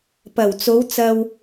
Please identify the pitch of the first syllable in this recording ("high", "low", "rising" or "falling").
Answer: low